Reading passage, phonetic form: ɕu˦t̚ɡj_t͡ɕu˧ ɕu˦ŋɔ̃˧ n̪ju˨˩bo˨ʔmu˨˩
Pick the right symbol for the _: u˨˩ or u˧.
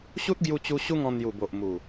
u˧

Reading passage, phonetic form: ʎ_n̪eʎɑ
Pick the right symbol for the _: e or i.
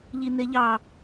i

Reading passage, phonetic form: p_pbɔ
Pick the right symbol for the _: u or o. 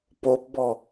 o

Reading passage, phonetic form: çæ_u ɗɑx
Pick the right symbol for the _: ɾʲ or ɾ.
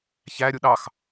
ɾʲ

